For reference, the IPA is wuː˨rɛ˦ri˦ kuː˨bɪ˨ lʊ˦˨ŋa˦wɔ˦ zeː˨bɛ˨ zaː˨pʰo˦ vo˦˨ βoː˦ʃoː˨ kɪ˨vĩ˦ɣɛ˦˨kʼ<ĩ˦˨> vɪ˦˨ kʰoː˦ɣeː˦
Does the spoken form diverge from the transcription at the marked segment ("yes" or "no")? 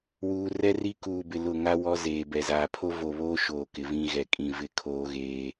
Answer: no